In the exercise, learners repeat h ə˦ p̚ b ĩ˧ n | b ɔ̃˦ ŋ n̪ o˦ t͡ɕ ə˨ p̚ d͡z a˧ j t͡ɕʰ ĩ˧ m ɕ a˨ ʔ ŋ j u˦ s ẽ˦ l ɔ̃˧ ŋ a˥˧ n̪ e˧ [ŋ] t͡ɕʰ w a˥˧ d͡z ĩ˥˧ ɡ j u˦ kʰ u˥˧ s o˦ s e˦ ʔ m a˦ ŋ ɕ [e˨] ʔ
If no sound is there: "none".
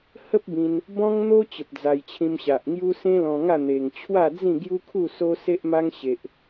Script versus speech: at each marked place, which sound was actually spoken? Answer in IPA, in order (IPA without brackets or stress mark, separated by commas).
ŋ, e˦